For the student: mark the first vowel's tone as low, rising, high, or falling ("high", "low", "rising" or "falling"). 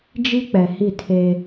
high